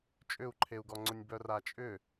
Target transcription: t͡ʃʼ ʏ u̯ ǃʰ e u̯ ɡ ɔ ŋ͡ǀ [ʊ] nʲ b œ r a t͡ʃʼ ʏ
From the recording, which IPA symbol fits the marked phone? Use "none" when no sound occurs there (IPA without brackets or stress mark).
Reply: ʊ